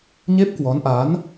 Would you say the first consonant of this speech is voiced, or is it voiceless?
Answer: voiced